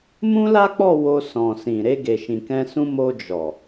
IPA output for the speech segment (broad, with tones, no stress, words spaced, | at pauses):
mũ˦la˦k͡pɔ˦˨ wo˧sɔ̃˨sĩ˨ ɾe˧ɡe˨ʃĩ˨kɛ̃˧ sũ˧mo˧ d͡ʒɔ˨